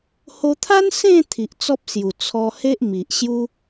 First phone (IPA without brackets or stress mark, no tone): h